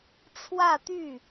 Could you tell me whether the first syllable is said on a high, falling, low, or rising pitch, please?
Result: falling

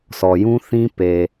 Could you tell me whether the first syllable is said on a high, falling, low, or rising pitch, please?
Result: low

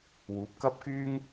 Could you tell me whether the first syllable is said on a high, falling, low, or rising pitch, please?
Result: rising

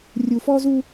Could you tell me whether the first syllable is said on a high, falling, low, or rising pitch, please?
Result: low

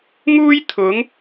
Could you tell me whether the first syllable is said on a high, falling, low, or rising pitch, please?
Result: high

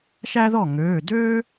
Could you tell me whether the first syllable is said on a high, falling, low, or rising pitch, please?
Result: high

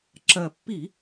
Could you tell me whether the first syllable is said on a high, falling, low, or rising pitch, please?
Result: low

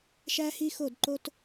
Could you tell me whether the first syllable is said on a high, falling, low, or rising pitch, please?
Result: high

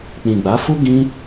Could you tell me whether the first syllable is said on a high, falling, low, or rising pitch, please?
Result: low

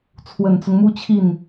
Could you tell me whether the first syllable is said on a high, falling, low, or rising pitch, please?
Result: low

